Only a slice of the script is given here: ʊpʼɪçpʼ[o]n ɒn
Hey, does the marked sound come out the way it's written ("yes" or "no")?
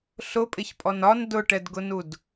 no